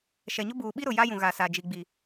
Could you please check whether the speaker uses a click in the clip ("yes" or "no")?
no